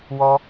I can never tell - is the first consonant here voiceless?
no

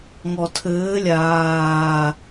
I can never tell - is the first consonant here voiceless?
no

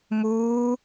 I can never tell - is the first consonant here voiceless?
no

